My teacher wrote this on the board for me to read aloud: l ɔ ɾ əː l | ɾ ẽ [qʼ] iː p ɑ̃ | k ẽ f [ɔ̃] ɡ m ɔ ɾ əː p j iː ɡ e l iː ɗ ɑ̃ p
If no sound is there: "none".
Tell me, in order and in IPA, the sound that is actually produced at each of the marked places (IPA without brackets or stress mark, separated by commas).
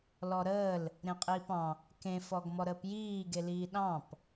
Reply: qʼ, ɔ